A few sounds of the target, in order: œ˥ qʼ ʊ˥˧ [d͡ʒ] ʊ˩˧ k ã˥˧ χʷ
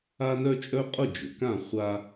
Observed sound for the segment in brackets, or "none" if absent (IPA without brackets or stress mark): d͡ʒ